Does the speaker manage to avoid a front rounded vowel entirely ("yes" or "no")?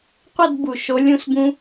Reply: yes